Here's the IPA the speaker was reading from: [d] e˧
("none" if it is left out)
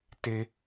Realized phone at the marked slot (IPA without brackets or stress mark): t